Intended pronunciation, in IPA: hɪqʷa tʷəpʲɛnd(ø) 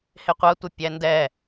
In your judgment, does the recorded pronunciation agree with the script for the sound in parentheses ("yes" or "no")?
no